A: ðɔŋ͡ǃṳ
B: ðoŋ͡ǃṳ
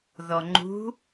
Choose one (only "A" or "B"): A